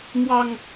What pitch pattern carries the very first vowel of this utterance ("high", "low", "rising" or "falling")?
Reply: low